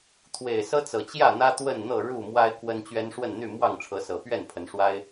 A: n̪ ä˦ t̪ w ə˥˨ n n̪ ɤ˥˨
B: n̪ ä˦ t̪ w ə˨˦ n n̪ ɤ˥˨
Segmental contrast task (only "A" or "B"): A